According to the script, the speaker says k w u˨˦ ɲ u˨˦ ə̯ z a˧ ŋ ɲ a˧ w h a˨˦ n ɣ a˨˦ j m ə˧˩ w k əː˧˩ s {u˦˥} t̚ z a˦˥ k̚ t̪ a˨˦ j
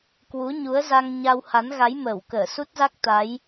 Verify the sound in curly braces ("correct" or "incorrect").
correct